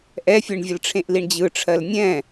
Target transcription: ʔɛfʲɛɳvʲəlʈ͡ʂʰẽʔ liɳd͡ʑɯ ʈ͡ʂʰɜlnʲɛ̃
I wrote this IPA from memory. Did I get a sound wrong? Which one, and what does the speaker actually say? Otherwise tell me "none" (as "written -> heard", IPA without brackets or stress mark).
none